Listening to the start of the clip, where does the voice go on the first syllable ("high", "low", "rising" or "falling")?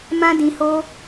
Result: high